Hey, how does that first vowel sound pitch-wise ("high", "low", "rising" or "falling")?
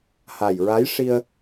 low